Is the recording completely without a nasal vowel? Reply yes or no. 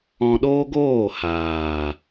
no